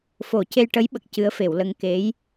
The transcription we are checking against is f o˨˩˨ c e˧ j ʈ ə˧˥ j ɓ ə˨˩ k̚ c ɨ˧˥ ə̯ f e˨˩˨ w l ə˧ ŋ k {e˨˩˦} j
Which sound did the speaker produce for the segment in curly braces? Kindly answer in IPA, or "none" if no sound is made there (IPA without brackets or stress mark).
e˧˥